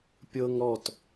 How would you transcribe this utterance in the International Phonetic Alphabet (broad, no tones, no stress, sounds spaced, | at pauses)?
pʲ ɤ ŋ ɾ ɔ t